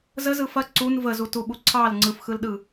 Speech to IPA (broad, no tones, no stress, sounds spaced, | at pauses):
z ə z ɯ f ɐ ǀ u n v ə z u t u ɓ u ǀʰ ɑ l ŋ͡ǀ ɯ f x ɯ l ɗ ɯ